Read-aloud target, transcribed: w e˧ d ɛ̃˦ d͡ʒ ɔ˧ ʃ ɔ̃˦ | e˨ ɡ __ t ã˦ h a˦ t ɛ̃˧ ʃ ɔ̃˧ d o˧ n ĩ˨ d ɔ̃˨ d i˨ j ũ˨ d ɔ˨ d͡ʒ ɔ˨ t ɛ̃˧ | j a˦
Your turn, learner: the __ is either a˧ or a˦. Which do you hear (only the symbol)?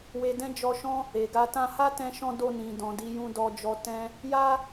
a˧